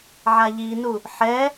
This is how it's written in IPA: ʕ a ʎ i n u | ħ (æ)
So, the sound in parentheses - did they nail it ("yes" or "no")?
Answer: no